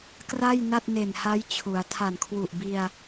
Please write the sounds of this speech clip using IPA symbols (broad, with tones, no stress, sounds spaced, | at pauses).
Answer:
k r a˥˩ j n a˥˩ t̚ n e˨˩ n h a˦˥ j t͡ɕʰ u˩˦ a̯ tʰ a˨˩ n kʰ w u˨˩ ʔ b i˧ a̯